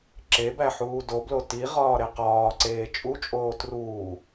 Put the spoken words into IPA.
ǁ e b æ ħ uː d o b l o t i ʁ ɒː ɾ e q ɒː ǀ eː t͡ʃʼ u t͡ʃʼ oː t r uː

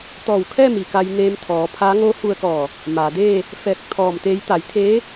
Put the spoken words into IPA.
t̪ ɔː˧˩ w kʰ ɛː˥˨ m i˩ k a˧ j n eː˧ m t̪ʰ ɔː˩˧ pʰ a˧˥ ŋ oː˧˥ h u˧ ə̯ k ɔː˧˩ | m aː˩ d eː˥˨ | f ɛː˧ k̚ t̪ʰ ɔː˧˩ m t̪ eː˧˥ j t̪ a˩˧ j t̪ʰ eː˧˥

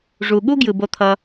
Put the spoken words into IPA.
ʐ u˨ ɠ u˦ ɡ j ɯ˨ b o˦ t̪ʰ ʌ˦

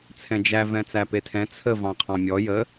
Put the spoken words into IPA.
t͡sʰ ɛ̃ d͡ʒ æ v ɛ̃ t͡s æ p e tʰ ɛ̃ t͡sʰ ə v ɑ̃ qʰ ɑ̃ mʲ ɔ j ə

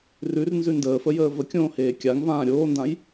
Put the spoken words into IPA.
r ʉ r n z ʉ n d əː f ə j əː v ə kʲ õː h eː kʲ a ŋ v ãː ɾʲ oː n d ã j

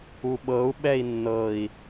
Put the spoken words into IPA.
u ɓ ɤ u̯ ɓ ɛ i̯ nː ɤ i̯

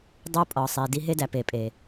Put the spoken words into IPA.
dˤ u˦ pʼ ɒ˨ sˤ i˨ d i˦ ɦ e˦ d æ˨ p e˨ pʼ e˨

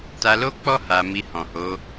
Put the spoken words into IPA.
t a˧ l o˦ k͡p ɔ˦ h a˧ m i˧ h ɔ̃˨ h o˨˦

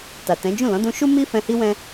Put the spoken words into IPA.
t a˨ t ɛ̃˨˦ d͡ʒ ũ˦˨ l ɔ̃˨˦ d ũ˧ ʃ u˦ m i˦ f ɛ̃˧ h i˦ w ɛ̃˦

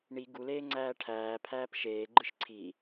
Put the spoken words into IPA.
ɳ i ɡ u l eː ŋ͡ǀ æː ʈʰ æː pʰ æː p ʃ eː ɡ͡ǃ ɯ ʃ ǀʰ i

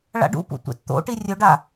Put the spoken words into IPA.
ɭ a̰ ɖ ṵ p ṵ tʷ ḛ t t̪ o̰ ʈ i rʲ ɵ ɖ a

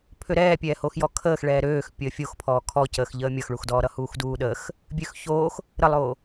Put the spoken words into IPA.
pʰ ø ɾ ɛː pʲ ɛː h o x j ɔ kʰ əː x ɭ ɛː ɾ øː x pʲ əː fʲ o x pʰ ɔː kʰ ɔ c əː x ʎ əː mʲ ʌ x ɭ u x d ɔː ɾ ʌ h uː x d uː ɗ əː x | bʲ ø x ç oː x | ɾ ə lˠ oː

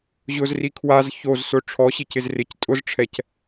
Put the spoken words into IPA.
ʑ ʊ z r i kʰ w a z ç o z s ʊ ʈ͡ʂʰ ɔ ɕ i c ɪ z r ɪ c tʼ ʊ z ʈ͡ʂʰ ɛ c

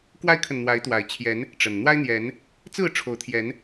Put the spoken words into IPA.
k w a˦ ɪ̯ kʰ ə˨ n n̪ w a˨˦ ɪ̯ t̪ w a˨˩ ɪ̯ t͡ɕʰ j ɛ˨˦ n | ʈ͡ʂ ə˨˩ n n̪ w a˦ ɪ̯ n̪ j ɛ˨˦ n | t͡s ɹ̩˥˨ ʈ͡ʂʰ o˨˦ ʊ̯ t̪ʰ j ɛ˨˦ n

